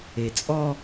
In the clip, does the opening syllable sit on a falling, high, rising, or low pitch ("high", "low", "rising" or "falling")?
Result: low